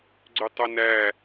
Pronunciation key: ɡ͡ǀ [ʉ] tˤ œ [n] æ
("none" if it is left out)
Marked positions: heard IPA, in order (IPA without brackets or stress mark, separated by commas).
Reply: ʉ, n